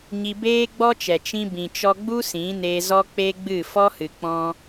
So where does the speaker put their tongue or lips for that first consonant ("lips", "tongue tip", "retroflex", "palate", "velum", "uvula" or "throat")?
palate